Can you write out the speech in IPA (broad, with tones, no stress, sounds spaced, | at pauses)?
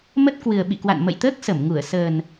m ə˦˥ t̚ k w ɨ˨˩ ə̯ ɓ ḭ˧˨ k w a̰˧˨ n m ə̰˧˨ j t̪ əː˦˥ k̚ s ə˧˩ m ŋ u˧˩ ə̯ s əː˨˩ n